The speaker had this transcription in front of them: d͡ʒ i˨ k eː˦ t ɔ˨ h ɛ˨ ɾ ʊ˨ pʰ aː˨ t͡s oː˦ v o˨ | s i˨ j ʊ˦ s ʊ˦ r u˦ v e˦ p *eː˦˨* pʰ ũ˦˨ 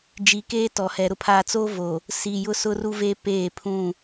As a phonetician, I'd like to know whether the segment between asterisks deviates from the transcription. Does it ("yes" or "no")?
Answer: no